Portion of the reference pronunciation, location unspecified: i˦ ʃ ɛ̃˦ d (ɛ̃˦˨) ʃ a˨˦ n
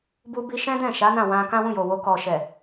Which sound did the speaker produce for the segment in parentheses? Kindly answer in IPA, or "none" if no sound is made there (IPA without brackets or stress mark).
ɛ̃˦˨